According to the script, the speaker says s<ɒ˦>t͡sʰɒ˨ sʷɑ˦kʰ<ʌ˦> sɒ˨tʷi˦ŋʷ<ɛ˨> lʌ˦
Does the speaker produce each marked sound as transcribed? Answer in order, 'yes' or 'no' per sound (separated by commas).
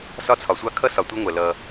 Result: yes, yes, yes